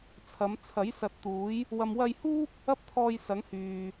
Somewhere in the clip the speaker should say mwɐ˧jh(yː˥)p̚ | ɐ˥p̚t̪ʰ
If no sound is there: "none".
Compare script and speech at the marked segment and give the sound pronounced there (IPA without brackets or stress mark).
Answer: uː˥